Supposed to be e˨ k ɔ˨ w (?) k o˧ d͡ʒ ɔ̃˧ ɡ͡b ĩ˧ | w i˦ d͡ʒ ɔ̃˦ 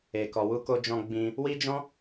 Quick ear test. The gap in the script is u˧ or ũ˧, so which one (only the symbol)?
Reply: u˧